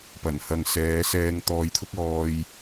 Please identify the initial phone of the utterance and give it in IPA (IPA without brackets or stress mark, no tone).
p